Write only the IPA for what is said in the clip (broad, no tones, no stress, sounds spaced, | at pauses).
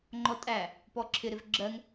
ŋ͡ǃ ɔ tʼ æ | p ɔ ǁʰ ɪ ɾ ɪ v ɡ͡ǁ ɜ ŋ